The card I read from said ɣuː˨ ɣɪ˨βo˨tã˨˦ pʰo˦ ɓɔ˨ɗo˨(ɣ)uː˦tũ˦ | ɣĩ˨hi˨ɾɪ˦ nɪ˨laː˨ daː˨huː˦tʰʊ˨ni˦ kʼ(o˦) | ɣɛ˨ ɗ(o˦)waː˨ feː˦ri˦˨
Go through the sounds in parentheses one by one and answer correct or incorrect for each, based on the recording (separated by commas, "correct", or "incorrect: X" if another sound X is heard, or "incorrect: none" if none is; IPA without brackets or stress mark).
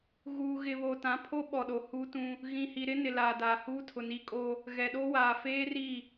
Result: incorrect: h, correct, correct